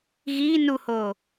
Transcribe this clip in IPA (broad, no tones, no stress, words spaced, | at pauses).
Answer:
ɣiː nuhoː